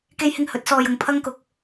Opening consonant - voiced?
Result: no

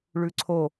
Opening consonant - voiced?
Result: yes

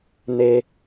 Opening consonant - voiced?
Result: yes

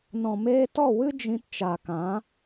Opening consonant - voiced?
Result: yes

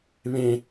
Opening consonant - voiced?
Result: yes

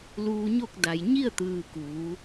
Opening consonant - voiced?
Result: yes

